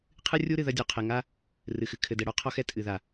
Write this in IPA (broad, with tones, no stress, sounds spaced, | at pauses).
qʰ ɨ˦ rʲ u˦ ɾ ɨ˨ ð ɐ˦ dʲ o˨ qʰ ɛ˨ ŋ a˦ | r ɨ˨ x ɨ˨ kʰ ɘ˨ d ɛ˨ ɽ ɔ˨˦ qʰ ɔ˦ x ɛ˦ tʼ ɨ˨ ð a˨